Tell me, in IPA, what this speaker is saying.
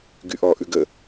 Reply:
ɡyʔɔ ʔʉɡə

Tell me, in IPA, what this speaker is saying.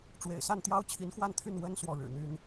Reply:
ʈ͡ʂwḛ˨˩ɪ̯sa˥˩nt̪jɑ˥ʊ̯ t͡ɕʰi˧˥nxwa˥˧nt̪ʰy˥˩n wə˥n swɔ˥˩ɻɻ̩˨˩n̪y˥n

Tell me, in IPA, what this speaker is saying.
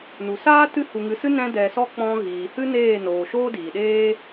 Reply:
nu˨saː˦ tɨ˦hu˧ŋɨ˧sɨ˦ nɛ̃˦dɛ˧sɔ˦ k͡pɔ̃˧ ɣiː˨hɨ˦ neː˦˨noː˨ ʃoː˦diː˨ɗeː˦

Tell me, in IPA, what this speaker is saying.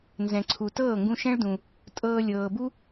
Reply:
nzɛ̃˨ǀʰu˨ tɤː˦˨ŋɡũ˧ʃɛ̃˦ɭdũ˨ | tʼɤː˧ lʲɤː˨bu˦

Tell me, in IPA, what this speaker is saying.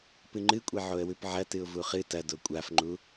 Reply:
pɨŋ͡ǃɨkʷʼe ʕoə̯wʉpʕɐ tɨʊ̯vuχɨ tɐ dokʷʼafŋ͡ǃu

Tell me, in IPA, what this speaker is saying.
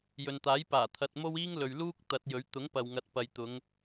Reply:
jɵ˨nt̪aː˨˥jpaː˨˩ t̪ʰɐ˨t̚ mo˥wiː˥ŋlɵ˨ɥluː˥k̚ t̪ɐ˨˥t̚jɵ˨˥ɥ t̪ʊ˨˥ŋpɐ˨wŋɐ˨˥t̚ pɐ˨jt̪ʊ˨˧ŋ

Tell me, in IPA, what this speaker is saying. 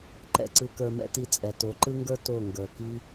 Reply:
ǃɛ̰˧ǀɯ˧ kə˞˧mɛ̰˦ ti˧ t͡sʼɛ˨ to˨˦ǃɯ˦ŋɡə˞˦ to˦˨ŋɡə˞˨ ki˦

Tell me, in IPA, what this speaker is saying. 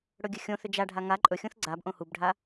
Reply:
ɽɵɡʲɘxʲõθʏ d͡ʒaɖʱa ŋa ǃʼɵxʲũθ ɡ͡ǀab ʔõhubɖʱa

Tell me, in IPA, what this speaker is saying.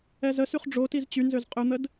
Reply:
ɛzəsyχ ɖ͡ʐotiz t͡ɕynzøz qʼøn̪əd

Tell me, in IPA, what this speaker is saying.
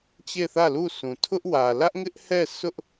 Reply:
t͡ɕe˦˨θä˦˨lu˦˨sũ˨ tʰʊ˦ʔwä˨ lä˦ʔŋɪ˦ʔhɛ˦˨sʊ˦ʔ

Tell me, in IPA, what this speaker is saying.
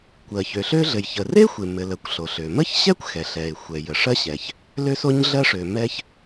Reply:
kʷɜ˩çø˩ɬø˥ɮɘ˩j çə˩re˥ xʷe˩ mɘ˩lə˩kʷ ɬo˩ɬø˩ mə˥çɕɛ˥kʷxɛ˩ɬɛ˩ɪ̯ xʷɛ˩jə˩ʂɜ˥ɕɛ˩ç | lø˥so˥ɲɮɜ˥ʂø˩ mɛ˥ç

